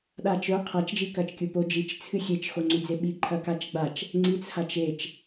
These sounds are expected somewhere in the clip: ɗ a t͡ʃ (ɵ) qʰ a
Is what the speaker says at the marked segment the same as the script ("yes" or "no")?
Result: yes